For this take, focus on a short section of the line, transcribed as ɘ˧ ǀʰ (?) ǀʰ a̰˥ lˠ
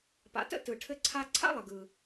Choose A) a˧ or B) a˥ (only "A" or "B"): A